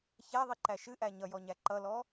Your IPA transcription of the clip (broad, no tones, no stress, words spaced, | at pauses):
çæðˤiǃæ ʃɨʔæ ɲʌjɔɲæ ǃʌlɔ